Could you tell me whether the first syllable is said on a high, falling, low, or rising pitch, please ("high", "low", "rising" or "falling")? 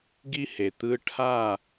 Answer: high